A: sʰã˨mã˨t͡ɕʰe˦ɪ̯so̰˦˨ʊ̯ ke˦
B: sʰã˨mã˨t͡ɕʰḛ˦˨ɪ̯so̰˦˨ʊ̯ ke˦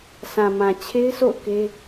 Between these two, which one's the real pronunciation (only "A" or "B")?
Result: A